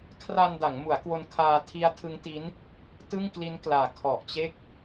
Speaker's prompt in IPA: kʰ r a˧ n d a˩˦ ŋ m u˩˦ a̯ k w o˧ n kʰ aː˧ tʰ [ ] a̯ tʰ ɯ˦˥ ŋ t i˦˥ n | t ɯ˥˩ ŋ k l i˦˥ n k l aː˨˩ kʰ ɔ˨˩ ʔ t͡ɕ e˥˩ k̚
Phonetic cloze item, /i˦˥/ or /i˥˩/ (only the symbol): i˦˥